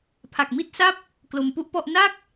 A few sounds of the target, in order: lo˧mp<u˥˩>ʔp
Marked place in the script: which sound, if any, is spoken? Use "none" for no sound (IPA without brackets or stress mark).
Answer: u˥˩